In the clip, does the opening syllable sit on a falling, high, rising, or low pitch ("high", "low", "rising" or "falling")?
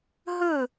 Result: falling